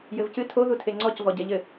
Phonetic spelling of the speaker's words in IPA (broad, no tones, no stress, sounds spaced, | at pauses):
j ɘ v c ɨ tʰ o ð u tʰ e ŋ͡ǀ ɔ c v ɔ ɟ ɛ ʎ ɘ